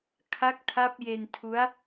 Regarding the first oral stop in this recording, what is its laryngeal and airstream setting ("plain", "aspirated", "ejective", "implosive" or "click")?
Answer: aspirated